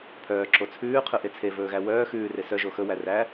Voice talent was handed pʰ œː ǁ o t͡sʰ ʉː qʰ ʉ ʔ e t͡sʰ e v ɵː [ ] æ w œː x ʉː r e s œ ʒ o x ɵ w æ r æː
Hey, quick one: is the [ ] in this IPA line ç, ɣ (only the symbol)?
ɣ